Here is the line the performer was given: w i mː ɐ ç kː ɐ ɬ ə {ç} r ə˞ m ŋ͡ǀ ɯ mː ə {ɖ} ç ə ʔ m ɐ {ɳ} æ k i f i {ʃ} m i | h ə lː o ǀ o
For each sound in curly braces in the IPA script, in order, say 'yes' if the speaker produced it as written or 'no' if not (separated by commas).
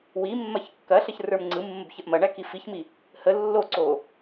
yes, no, yes, no